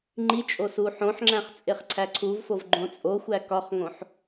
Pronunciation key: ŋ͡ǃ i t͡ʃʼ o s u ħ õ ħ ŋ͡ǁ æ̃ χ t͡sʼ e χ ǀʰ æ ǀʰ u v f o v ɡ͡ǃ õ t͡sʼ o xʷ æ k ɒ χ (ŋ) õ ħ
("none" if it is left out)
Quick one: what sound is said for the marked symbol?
ŋ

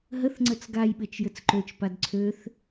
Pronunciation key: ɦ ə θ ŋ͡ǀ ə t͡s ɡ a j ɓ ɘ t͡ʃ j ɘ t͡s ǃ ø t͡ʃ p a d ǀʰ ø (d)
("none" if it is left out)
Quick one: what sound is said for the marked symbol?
θ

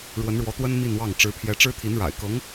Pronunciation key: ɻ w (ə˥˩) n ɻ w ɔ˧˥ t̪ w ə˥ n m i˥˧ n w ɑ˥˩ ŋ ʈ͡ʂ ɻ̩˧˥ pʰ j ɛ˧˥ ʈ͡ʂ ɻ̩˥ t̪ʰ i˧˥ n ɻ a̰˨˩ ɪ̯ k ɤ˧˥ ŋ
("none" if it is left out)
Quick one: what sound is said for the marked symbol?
ə˧˥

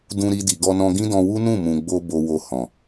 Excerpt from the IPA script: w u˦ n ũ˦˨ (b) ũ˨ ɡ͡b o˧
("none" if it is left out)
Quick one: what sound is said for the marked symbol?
m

